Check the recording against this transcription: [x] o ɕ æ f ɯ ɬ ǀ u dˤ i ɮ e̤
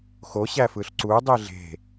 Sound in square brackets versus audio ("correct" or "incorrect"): correct